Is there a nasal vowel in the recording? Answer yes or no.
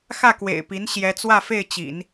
no